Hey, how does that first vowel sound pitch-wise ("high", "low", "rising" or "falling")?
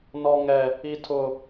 high